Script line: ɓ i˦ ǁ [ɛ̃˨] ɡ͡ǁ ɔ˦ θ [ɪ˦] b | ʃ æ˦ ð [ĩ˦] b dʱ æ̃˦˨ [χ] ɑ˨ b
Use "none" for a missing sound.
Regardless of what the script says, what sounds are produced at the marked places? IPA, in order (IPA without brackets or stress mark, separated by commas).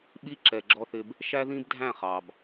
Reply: ɛ˨, ɪ˦, ĩ˦, χ